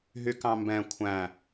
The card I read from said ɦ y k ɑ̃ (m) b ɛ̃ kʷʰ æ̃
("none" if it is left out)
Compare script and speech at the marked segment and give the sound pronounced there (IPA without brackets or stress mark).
m